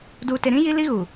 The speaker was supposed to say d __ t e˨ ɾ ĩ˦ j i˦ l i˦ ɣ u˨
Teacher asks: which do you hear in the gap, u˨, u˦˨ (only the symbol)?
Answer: u˨